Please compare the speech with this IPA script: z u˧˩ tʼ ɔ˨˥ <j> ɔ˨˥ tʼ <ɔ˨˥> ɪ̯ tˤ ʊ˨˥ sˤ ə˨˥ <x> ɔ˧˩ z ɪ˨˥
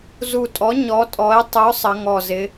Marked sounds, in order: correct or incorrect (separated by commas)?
incorrect, correct, incorrect